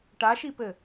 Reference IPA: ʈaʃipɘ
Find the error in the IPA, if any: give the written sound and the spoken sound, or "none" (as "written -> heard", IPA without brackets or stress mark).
none